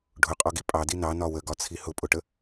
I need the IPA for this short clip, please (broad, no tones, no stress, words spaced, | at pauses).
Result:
ɖʱʊqʼɔɡi pʼɑdi nɑnɒ wəɡɒt͡sʰi hʊpʼʊʈə